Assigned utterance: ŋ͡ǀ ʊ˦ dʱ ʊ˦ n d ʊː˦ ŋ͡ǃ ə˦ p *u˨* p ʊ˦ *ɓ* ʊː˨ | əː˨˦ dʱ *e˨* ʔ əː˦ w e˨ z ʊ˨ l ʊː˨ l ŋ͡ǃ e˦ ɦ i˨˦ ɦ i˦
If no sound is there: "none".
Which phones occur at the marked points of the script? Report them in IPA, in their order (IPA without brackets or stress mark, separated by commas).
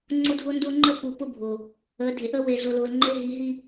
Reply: u˨, bʱ, e˨